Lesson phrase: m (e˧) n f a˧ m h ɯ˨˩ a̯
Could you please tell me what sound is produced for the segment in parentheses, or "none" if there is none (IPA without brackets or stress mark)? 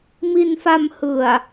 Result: i˧